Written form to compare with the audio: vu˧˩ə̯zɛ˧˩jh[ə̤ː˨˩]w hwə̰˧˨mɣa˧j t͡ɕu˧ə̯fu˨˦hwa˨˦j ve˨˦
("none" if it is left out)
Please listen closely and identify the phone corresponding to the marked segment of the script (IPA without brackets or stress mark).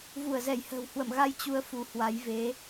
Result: ə̤ː˨˩